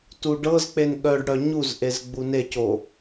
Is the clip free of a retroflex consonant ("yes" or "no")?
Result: no